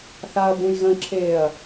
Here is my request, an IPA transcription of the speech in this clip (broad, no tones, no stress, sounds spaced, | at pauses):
θ a ɐ̯ b ũ j ɣ ə̃ ǁʰ eː ɐ̯